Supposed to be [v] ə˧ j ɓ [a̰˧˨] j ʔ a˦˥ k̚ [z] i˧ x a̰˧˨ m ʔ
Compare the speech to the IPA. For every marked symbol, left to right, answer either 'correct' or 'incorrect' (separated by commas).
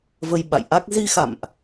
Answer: correct, correct, correct